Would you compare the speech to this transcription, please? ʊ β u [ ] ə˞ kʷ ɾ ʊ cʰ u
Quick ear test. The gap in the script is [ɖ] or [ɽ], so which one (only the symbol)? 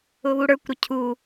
ɽ